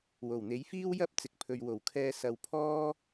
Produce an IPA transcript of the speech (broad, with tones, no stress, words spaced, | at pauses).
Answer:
wo˨˩wn̪e˨˥jfiː˥wjɐ˥p̚ t͡sɪ˨k̚pʰɵ˨ɥ wo˨˩wkʰɛː˧ sɐ˧w pʰɔː˥